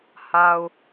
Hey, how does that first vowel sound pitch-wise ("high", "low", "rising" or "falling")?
low